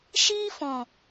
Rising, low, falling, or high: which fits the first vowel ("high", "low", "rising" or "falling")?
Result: high